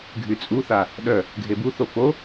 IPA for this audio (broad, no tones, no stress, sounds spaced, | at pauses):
ɡʱ y t͡sʼ u θ a | ɗ œ | ɡʱ e b u θ o f o